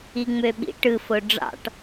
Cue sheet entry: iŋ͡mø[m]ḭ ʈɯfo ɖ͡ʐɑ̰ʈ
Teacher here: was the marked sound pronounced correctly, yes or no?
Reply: no